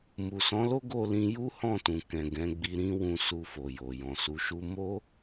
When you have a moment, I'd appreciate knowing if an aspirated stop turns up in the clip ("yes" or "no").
no